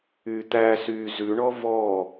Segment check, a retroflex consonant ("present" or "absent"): present